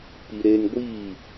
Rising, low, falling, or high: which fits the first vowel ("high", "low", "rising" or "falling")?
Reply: low